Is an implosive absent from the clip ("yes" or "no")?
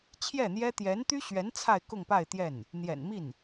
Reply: yes